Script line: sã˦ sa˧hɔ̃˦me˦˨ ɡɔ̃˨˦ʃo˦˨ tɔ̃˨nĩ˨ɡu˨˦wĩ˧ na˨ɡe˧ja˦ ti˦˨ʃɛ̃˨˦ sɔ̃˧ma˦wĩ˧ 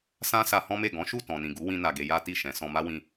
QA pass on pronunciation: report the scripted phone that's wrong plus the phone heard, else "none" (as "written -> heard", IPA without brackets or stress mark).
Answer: o˦˨ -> u˦˨